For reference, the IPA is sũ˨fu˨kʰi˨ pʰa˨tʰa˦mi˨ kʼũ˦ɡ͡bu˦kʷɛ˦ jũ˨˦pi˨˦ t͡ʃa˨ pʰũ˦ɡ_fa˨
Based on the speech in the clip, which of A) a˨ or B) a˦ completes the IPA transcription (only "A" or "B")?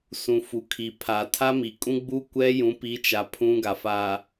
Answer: A